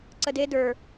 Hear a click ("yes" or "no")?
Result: yes